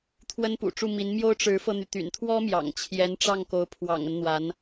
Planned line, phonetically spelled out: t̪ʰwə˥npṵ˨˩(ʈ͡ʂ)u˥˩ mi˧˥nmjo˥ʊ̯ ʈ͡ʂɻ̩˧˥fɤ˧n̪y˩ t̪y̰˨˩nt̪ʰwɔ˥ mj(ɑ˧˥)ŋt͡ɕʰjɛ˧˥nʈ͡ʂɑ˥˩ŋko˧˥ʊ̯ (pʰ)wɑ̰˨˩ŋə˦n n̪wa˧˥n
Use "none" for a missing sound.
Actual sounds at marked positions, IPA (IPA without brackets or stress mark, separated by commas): ʈ͡ʂ, ɑ̰˨˩, pʰ